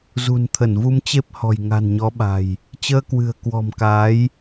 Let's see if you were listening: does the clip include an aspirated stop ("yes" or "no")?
yes